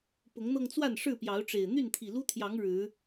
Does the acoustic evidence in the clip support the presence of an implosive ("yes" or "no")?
no